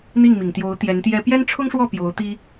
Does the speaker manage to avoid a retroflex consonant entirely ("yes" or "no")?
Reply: no